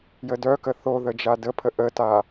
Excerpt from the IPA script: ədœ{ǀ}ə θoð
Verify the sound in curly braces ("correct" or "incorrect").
incorrect